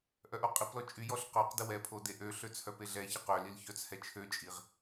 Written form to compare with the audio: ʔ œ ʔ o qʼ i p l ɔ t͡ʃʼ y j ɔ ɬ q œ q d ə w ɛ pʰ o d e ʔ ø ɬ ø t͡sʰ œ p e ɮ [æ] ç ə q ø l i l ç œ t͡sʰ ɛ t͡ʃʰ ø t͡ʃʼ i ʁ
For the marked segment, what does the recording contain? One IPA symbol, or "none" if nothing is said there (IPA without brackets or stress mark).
ɛ